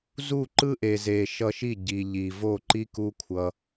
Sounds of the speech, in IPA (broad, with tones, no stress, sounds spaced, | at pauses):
z u˦˨ ǃ ɯ˦ ʔ e˨ z e˨ ʃ ʌ˧ ʃ i˦˨ ɟ i˨ ʎ i˨ v o˦˨ ǃ i˦ k u˦ kʷʰ ʌ˧